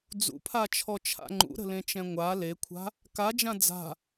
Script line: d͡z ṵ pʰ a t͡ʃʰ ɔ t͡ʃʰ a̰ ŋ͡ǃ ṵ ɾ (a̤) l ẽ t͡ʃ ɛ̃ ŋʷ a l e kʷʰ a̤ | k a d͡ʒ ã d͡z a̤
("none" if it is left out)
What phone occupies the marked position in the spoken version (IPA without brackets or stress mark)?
ə̤